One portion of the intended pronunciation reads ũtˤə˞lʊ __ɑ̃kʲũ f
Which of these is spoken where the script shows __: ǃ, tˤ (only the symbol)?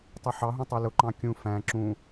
ǃ